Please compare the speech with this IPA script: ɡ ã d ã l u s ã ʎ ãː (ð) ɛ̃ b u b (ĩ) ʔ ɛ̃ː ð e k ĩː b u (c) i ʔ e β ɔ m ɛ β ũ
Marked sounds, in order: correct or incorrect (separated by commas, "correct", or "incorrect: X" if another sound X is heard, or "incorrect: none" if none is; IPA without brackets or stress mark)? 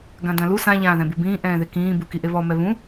correct, incorrect: ĩː, incorrect: k